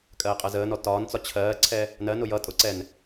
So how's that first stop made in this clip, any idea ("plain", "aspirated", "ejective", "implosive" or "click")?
ejective